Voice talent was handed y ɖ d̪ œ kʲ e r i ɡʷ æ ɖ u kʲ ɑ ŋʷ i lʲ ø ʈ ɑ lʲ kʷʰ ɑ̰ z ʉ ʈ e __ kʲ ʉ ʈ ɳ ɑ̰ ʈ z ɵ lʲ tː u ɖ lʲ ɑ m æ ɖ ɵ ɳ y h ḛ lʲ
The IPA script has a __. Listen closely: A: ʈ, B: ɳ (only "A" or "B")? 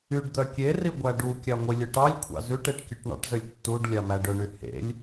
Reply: A